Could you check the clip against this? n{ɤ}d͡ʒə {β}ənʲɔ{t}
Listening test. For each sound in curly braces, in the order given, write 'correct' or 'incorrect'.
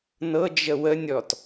correct, incorrect: w, correct

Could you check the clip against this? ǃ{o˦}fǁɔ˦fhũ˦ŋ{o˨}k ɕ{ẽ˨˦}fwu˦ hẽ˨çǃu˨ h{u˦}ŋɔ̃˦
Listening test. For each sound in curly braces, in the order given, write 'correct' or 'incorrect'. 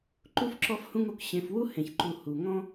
incorrect: u˦, correct, incorrect: ẽ˨, incorrect: u˨

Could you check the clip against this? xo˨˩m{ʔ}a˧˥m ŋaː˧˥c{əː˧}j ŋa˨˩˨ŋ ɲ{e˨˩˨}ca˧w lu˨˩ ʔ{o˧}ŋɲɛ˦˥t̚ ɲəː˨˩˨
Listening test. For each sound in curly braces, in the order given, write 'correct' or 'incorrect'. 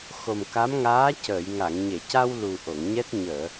incorrect: k, incorrect: əː˨˩˨, correct, incorrect: o˨˩˨

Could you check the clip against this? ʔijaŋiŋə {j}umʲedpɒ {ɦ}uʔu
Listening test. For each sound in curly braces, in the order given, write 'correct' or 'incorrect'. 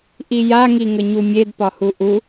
incorrect: ɲ, incorrect: h

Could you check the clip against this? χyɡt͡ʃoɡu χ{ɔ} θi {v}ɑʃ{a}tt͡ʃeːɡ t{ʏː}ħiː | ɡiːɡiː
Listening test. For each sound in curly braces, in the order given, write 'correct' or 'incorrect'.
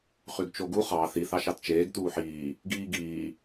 incorrect: ɑ, incorrect: θ, incorrect: ɑ, incorrect: uː

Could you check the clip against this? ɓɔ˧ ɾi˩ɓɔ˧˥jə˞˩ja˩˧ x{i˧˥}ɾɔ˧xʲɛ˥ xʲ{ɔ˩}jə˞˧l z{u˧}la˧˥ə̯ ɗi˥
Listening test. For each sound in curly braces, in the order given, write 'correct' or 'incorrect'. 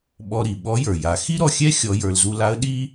incorrect: i˥, incorrect: ɔ˧˥, correct

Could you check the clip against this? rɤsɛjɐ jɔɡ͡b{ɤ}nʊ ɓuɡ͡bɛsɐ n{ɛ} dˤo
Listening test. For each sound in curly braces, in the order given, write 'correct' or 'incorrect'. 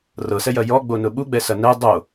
incorrect: o, correct

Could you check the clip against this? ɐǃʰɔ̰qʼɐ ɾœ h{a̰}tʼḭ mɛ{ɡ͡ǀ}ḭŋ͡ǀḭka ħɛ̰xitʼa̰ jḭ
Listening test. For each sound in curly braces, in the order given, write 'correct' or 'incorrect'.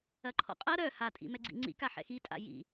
incorrect: a, correct

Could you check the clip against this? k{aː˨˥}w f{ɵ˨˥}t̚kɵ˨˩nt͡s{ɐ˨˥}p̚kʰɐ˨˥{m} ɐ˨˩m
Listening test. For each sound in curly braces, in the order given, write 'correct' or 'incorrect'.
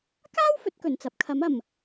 incorrect: aː˥, correct, correct, correct

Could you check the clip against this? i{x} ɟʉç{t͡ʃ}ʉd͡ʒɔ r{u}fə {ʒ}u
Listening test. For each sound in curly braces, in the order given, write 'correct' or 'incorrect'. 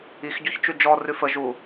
correct, correct, incorrect: ʉ, correct

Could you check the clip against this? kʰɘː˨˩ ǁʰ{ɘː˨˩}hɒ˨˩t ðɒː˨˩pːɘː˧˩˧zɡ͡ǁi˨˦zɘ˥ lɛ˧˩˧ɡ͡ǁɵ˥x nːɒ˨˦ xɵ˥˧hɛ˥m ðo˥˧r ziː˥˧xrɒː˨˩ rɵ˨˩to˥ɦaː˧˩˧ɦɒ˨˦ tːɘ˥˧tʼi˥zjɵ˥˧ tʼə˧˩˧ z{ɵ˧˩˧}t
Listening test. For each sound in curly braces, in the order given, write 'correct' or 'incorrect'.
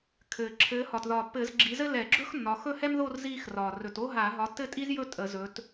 incorrect: ɘː˨˦, incorrect: ɵ˨˦

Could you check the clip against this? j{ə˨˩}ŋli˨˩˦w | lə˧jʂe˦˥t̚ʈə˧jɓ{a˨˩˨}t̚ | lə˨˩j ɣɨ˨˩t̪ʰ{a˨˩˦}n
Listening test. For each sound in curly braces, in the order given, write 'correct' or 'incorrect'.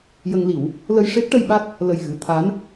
incorrect: ə˧, incorrect: a˦˥, incorrect: a˧˥

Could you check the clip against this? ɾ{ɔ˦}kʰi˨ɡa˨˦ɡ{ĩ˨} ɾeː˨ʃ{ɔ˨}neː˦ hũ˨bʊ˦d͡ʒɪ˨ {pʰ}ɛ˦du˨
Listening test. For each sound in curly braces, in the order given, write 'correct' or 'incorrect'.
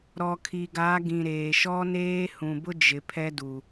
incorrect: ɔ˨, correct, incorrect: ɔ˦, correct

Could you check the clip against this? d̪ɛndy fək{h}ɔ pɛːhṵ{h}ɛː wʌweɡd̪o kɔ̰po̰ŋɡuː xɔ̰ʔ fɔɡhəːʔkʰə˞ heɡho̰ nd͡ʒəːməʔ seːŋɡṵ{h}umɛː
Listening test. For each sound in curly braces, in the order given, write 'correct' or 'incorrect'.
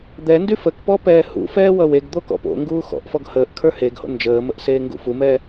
incorrect: p, incorrect: f, incorrect: f

